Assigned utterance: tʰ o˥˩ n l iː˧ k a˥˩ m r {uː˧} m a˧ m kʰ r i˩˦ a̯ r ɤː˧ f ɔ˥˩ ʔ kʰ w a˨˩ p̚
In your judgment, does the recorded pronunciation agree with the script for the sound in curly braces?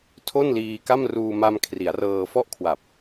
yes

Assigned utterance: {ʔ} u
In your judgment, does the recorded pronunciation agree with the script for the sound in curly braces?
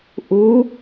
yes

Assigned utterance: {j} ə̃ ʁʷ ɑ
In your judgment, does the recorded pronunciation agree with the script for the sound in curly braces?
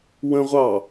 no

